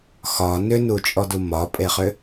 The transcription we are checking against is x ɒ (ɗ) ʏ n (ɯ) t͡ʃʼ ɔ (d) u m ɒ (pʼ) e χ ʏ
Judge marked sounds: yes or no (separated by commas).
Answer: no, no, yes, yes